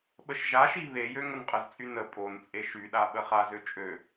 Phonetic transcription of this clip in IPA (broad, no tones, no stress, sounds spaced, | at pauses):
ɓ ə ʃ ʒ a ʃ i β e j ø ŋ ə n qʼ ə z t͡sʼ y n ə pʼ o n t͡sʼ e ʃ y ɗ a ɓ ə χ a z ø t͡ʃʼ ø